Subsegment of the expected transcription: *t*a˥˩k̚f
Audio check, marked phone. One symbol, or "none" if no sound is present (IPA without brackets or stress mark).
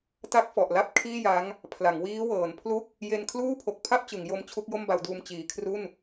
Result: t